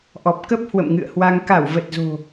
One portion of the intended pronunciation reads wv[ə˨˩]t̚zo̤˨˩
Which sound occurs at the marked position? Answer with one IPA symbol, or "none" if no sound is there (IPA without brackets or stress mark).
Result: ə˨˩